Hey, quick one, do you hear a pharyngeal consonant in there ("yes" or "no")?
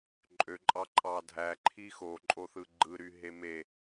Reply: no